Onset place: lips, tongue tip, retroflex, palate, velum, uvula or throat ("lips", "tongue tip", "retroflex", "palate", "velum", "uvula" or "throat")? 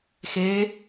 velum